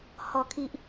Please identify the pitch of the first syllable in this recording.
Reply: low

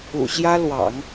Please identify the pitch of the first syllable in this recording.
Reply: low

